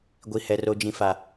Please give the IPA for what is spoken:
ɡʷ i˨ h ɛ˨ r o˨ d͡ʒ ĩ˨ f a˨

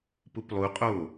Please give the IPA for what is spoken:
p u p lˠ u qʼ o

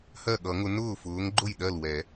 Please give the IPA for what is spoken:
h ɜ˥˩ ɠ ʌ˨˩˦ ŋ ʊ˨˦ n ʊː˥˩ f ʊː˨˦ ŋ ɡ͡ǃ ʊ˥˩ j ɗ ɜ˥˩ l w ɛ˨˩˦

